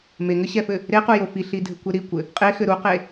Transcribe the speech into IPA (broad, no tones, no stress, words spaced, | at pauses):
meŋɘɕɛfɘ | ɾequjo fiɬidʱɘkʷe ɾikʷɘ | qʼexɘ ɾuqe